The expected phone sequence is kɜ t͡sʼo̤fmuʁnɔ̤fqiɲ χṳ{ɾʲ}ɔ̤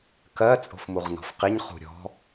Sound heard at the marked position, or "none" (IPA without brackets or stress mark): ɾʲ